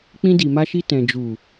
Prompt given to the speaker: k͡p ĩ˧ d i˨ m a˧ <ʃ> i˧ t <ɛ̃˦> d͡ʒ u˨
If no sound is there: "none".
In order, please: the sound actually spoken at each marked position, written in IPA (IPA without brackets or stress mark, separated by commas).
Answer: ʃ, ɛ̃˨